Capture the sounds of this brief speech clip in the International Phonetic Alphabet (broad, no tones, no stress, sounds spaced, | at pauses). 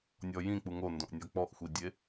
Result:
nʲ ɔ j ĩ k͡p u ŋ o n d õ ʔ nʲ ɔ k͡p ɔ ʔ xʷ i dʲ e